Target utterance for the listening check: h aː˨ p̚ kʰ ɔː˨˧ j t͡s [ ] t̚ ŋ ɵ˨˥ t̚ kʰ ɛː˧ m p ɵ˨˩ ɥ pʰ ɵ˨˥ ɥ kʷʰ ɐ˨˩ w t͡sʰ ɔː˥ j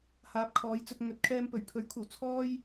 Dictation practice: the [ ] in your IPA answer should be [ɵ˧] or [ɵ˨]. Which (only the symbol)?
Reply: ɵ˧